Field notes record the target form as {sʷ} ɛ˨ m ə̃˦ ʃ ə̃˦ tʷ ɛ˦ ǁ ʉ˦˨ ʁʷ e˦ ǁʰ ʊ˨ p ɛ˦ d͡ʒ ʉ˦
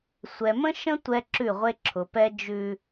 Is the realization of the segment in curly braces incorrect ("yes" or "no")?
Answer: no